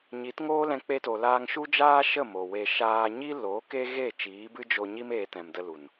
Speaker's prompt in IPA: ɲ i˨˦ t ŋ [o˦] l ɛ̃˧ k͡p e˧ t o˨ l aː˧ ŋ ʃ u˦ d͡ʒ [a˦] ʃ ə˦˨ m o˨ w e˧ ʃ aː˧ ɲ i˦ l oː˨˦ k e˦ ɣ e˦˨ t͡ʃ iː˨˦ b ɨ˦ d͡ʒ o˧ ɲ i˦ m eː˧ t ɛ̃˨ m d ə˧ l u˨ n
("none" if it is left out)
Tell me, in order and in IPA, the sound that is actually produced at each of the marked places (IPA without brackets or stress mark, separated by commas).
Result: oː˦, aː˦